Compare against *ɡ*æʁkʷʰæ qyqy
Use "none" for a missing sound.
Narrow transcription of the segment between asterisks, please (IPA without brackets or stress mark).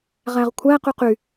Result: ʁ